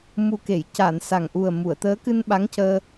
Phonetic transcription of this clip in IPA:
m u˨˩ k e˨˩˨ j c a˨˩˨ n s a˨˩ ŋ ʔ u˨˩ ə̯ m u˨˩˨ ə̯ t̪ əː˧˥ k ɨ˧ n ɓ a˧˥ ŋ c əː˧

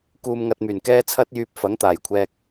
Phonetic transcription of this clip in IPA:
k uː˧ m ŋ ɐ˧ t̚ m yː˨˩ n k ɛː˥ t͡sʰ ɐ˥ t̚ j yː˧ p̚ f ɐ˨˥ ŋ t̪ aː˨˩ j kʷʰ ɛː˧ k̚

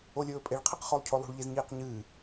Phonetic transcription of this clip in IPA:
o lʲ ɵː pʼ e ɭ qʰ i q χ o lˠ cʰ o lˠ ṳ ɭ ʎ e z ɲ iː q ɲ ɨː

